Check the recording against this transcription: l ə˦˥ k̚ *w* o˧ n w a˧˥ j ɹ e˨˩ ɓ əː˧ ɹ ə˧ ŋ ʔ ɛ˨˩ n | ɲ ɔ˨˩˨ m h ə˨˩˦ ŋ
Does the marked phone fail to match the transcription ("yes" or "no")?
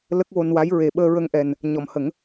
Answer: no